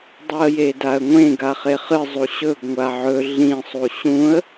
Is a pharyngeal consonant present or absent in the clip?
present